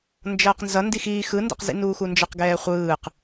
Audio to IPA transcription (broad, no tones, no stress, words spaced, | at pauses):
nd͡ʒʌːqnzʌ ndixiː xɯndɛ̰qzḭ nuːxund͡ʒʌq ɡɛːχʷɯːq